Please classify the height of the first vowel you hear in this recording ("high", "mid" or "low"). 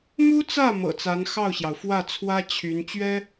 high